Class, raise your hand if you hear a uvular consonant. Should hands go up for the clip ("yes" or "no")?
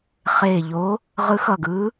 yes